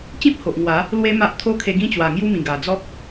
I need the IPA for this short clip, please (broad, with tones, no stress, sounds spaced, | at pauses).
t͡ɕ ĩ˦ p̚ h o˨ ʔ ŋ w a˨˦ | l w e˦ m a˦ ʔ t̪ʰ o˦ kʰ e˧ ɡ ĩ˦ t͡ɕ w a˨˩ ŋ j u˦ m ĩ˨˩ ɡ a˨˩ d͡z ɔ˦ k̚